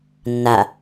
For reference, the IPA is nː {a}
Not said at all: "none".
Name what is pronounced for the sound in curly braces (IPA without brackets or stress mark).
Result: a